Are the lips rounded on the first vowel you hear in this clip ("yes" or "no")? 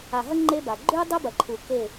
no